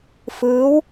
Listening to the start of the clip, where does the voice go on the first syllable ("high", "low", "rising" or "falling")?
rising